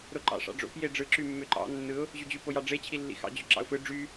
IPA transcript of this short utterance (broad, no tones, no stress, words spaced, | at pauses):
ɾoǃɑ̰ʂɑ̰ɖ͡ʐo̰p jeɖ͡ʐɯ ǁymːøǃɑ̰ nːɯʊ̯ | ʑyd͡ʑy pojɑɖ͡ʐe t͡ɕʰilːḭxɑ̰ d͡ʑøǁɑ̰ʊ̯fɯ ɖ͡ʐy